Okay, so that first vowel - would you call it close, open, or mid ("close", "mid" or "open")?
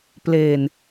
mid